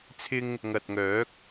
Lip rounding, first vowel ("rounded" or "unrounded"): unrounded